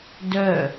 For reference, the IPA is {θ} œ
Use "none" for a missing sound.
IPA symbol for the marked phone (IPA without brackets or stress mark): d